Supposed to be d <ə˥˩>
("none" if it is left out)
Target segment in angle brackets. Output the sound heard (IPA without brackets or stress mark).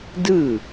ɯ˥˩